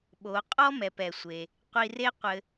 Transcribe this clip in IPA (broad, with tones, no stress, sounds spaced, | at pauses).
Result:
ɓ o˩˧ qʼ ɔ˥ m ɛ˩ p ɛ˩ sʷ e˩ | qʷ i˧ r e˥ qʷ ɘ˧